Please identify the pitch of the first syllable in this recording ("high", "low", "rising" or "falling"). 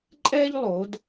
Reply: high